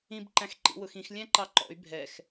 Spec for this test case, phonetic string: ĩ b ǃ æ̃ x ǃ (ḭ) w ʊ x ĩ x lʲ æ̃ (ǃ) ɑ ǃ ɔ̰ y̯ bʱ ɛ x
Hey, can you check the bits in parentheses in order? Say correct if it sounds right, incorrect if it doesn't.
correct, correct

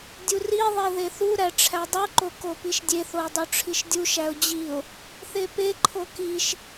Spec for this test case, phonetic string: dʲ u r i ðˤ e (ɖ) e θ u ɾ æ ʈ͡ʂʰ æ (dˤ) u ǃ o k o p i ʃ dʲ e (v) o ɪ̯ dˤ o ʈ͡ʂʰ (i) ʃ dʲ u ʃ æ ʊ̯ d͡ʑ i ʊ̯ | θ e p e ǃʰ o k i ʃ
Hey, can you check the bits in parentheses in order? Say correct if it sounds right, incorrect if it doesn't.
incorrect: ð, correct, incorrect: θ, correct

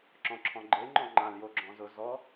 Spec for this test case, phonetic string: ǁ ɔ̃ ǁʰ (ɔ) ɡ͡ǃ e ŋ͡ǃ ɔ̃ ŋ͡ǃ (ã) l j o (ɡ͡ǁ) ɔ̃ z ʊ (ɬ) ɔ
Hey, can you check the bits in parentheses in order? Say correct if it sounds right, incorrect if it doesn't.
incorrect: ɔ̃, correct, correct, incorrect: z

